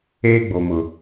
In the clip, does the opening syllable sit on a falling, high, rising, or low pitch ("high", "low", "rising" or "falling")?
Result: high